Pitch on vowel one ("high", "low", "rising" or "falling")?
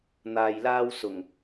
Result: low